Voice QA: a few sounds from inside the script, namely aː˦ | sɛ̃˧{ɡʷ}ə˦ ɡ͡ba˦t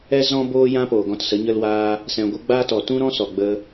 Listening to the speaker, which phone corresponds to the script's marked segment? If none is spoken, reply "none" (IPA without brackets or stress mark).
ɡʷ